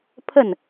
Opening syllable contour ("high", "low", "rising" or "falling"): falling